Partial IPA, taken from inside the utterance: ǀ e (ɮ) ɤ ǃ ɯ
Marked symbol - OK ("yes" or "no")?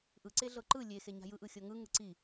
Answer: yes